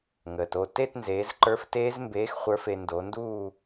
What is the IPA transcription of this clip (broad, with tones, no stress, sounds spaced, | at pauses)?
ŋ əː˨ t o˥˩ t e˥˧ t n z eː˨˦ z ǃ ə˞˦˥ f t eː˦˥ z m b eː˨˦ x χʷ ə˞˨˦ f e˨ n d o˨˦ n d uː˥˧